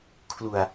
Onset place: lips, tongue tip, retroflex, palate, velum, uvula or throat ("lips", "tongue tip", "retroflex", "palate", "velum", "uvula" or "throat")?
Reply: velum